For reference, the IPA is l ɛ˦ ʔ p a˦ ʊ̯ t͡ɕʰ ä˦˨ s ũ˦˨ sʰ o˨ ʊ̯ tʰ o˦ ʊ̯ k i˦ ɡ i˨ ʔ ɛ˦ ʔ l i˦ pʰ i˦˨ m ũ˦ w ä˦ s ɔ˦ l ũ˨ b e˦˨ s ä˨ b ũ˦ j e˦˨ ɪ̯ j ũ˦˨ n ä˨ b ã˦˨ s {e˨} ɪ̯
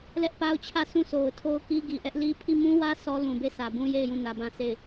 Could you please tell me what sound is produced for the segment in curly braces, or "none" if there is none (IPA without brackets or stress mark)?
e˦˨